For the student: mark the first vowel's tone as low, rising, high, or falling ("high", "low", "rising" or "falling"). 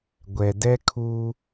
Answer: low